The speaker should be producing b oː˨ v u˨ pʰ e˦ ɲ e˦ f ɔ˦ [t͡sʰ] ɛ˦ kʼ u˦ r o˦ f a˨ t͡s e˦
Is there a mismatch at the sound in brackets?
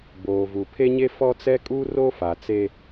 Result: yes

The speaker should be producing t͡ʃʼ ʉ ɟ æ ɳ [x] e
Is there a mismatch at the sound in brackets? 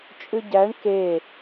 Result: yes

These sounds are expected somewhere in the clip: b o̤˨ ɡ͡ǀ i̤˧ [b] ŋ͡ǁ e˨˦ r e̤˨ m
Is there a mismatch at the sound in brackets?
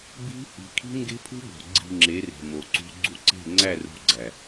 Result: yes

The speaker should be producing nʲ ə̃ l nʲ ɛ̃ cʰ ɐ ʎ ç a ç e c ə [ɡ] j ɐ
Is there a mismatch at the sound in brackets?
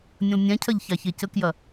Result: yes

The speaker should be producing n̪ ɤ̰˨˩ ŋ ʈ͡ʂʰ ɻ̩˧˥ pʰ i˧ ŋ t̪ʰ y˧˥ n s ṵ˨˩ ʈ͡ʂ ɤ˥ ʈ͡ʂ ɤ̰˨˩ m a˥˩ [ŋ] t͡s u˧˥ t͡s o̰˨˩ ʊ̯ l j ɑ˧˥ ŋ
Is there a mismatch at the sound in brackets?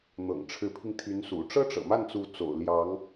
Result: yes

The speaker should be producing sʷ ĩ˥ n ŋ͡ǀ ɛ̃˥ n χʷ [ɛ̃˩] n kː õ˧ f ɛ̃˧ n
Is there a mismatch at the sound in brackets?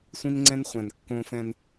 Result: no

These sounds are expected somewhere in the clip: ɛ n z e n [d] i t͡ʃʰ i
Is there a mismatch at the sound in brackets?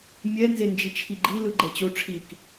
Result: yes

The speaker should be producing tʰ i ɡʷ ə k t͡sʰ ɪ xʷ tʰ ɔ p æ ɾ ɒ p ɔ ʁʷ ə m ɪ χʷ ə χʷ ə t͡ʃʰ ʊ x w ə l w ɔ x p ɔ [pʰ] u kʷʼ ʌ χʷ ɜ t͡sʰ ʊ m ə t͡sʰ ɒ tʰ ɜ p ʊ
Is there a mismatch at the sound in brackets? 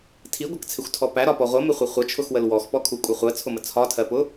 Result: yes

